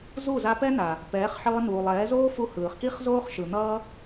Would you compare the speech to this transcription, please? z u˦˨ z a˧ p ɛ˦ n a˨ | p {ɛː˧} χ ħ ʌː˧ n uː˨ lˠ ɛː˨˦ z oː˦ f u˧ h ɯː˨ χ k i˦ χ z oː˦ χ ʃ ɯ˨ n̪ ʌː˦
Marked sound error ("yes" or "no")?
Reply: yes